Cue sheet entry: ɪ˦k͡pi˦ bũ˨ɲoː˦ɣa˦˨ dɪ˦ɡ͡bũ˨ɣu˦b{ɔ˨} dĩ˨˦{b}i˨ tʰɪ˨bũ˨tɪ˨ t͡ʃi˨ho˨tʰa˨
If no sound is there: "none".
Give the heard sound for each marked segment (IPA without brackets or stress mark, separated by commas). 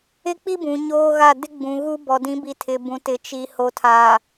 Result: ɔ˨, b